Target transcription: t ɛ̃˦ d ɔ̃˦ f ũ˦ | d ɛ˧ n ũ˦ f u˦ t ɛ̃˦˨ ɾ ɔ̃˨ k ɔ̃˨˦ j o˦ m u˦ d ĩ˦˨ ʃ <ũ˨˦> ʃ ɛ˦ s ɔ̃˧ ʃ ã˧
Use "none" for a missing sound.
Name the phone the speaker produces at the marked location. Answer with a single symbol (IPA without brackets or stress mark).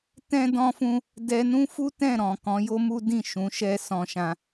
ũ˨˦